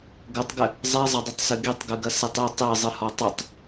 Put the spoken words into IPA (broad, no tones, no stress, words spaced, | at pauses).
ɡɐtˤɡɘ | zˤɛzˤɐdˤɨtˤsɨ ɡitˤɡɨɡɐsɨtˤ i tˤezˤɨhɔ tˤɘtˤ